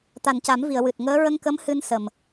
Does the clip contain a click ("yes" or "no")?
no